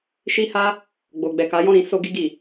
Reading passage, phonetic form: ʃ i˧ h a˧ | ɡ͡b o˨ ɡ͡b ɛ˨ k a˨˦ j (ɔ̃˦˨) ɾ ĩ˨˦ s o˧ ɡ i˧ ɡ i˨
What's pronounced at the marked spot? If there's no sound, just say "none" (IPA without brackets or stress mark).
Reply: ɔ̃˦˨